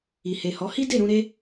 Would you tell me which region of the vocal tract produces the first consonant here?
throat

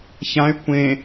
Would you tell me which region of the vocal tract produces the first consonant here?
palate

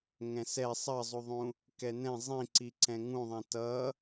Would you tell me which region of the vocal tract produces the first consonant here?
velum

